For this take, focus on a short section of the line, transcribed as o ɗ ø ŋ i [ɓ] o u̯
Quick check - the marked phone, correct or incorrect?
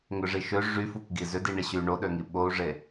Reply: correct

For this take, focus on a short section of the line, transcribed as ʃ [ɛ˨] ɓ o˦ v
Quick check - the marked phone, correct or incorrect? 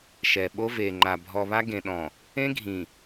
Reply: correct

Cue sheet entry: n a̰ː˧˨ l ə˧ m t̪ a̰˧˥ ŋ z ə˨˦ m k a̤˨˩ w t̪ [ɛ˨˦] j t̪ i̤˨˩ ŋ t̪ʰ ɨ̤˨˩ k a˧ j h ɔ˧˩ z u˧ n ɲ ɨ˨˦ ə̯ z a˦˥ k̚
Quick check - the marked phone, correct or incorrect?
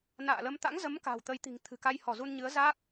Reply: incorrect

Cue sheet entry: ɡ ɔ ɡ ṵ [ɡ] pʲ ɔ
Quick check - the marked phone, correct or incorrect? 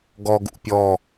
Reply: incorrect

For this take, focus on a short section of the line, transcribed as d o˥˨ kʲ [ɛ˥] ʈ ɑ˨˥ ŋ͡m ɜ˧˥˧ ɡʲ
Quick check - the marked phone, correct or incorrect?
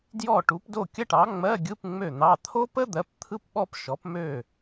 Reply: incorrect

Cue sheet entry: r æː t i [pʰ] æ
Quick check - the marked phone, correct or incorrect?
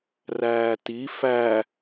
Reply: incorrect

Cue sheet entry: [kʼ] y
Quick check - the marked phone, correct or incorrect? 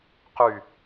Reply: incorrect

